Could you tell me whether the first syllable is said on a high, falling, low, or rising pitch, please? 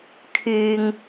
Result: low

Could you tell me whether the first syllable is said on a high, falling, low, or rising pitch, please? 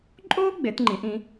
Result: high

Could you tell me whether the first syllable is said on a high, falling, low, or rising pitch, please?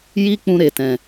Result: high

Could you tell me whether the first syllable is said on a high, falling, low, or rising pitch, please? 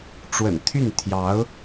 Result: low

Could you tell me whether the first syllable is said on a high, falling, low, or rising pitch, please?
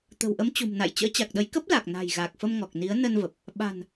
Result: low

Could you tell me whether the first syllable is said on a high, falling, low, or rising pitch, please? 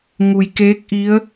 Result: low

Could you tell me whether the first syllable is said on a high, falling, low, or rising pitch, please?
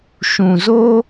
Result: low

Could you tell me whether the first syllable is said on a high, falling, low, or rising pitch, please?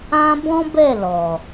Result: high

